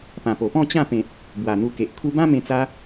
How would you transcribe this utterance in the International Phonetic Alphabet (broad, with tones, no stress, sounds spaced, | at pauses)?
p ã˨˩ p o˨˩ p ɔ̃˥˧ t͡ɕ ã˥˧ p ẽ˨ t̚ | b w a˨˩ n̪ u˧ k e˨ ʔ kʰ u˧ b ã˦ m ẽ˧ t͡s a˦